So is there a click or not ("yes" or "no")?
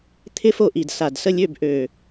no